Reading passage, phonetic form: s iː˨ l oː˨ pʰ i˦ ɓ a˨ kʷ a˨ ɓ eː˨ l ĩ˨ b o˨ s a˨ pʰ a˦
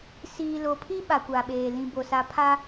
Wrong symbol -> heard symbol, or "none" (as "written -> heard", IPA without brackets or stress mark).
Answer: oː˨ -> o˨